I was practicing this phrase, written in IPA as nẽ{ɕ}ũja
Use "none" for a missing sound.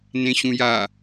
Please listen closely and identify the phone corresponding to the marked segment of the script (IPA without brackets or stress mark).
ɕ